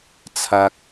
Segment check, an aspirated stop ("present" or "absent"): present